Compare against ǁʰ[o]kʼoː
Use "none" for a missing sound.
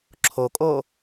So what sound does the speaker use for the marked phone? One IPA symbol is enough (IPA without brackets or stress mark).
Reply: o